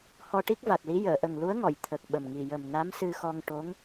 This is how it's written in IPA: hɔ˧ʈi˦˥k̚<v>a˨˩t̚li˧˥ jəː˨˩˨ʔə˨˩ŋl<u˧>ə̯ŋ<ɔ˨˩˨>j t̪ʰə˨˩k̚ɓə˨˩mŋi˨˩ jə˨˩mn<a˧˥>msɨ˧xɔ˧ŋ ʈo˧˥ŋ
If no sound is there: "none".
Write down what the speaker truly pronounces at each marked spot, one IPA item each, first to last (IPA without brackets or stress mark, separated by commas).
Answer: v, u˧˥, ɔ˨˩˨, a˧˥